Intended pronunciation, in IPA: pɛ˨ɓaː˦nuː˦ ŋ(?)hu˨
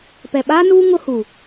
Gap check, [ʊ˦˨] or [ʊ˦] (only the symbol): ʊ˦